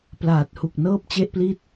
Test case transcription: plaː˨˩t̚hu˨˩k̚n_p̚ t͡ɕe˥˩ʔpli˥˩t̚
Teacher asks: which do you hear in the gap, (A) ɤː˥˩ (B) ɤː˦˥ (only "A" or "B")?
A